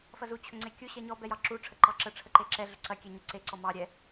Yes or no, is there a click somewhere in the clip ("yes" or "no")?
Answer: yes